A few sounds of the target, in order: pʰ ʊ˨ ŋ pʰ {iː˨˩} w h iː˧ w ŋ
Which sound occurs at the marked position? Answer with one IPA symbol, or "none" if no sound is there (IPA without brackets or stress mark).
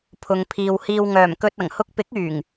iː˨